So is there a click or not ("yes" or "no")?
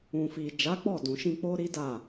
no